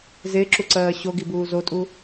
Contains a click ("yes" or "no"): yes